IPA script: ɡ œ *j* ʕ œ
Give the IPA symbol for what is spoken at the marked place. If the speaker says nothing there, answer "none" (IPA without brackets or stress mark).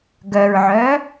ɹ